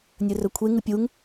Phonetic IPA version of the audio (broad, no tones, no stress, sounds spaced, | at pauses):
nʲ ɵ r ɵ kʷʰ e ŋ ɨ pʲ u ŋ